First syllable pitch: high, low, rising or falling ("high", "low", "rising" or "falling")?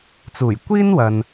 low